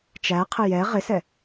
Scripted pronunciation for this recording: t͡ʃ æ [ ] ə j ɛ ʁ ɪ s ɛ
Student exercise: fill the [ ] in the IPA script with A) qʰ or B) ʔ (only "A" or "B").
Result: A